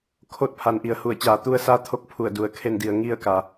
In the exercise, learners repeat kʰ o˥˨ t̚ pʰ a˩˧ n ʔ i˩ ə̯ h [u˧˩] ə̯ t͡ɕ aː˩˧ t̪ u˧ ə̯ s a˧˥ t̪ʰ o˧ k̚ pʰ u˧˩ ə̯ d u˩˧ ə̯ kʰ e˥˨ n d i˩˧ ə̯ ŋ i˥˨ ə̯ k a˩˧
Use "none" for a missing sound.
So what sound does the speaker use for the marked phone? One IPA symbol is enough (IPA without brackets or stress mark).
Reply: u˧˩